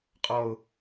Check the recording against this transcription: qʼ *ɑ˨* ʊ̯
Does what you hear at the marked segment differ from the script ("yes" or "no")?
yes